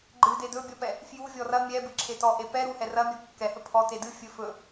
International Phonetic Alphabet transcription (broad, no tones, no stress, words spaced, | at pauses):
ɡ͡ǃɨde dɵbʲɔpɛ | fjuvʲɔ rɐ mʲɛbɨǁʰe tɔʔe pɛ ɾuhɛ rɐmʲɔ kːɛhɵ pʰɔte dɨ fʲɵ fɵ